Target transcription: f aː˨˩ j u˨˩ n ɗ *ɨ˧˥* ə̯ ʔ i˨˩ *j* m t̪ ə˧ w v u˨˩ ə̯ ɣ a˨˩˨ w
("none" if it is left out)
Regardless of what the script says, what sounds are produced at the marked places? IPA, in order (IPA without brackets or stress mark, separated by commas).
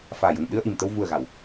ɨ˧, none